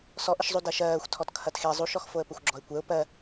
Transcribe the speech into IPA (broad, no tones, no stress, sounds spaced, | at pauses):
s ɔ ʔ ə ʃ zˤ u d ɜ ʃ ɜː xʷ tʰ ɔ t kʰ ɐ t x e zˤ u ʃ ɔ x f o ə̯ p ə xʷ ɡ͡ǁ ɔ ɪ̯ kʷ ɛ ʊ̯ p ɜ